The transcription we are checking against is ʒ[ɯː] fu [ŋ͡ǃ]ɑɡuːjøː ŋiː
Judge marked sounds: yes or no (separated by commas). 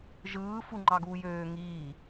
yes, yes